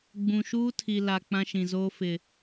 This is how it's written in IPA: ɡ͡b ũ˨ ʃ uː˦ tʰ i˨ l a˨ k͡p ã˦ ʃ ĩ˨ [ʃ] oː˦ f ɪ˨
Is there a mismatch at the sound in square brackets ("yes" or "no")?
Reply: yes